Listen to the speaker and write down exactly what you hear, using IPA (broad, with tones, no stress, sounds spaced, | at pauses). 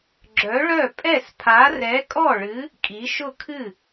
ɡ͡ǁ œ˨˥ ɭ œ˥˩ pʼ ɛ˥˩ s pʰ a˨˥ r ɛ˨˥ kʼ ɔ˥˩ ɭ ɨ˨˥ | kʼ i˨˥ ʃ ʊ˥˩ kʰ ɨ˥˩